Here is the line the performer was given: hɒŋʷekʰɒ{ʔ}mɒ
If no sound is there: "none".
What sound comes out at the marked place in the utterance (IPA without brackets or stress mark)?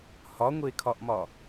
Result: ʔ